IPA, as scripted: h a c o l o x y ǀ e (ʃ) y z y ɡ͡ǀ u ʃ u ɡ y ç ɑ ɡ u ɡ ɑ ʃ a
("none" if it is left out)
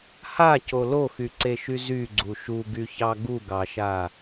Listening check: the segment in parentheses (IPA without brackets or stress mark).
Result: ʃ